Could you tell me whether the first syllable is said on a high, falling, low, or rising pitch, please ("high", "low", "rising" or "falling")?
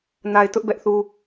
low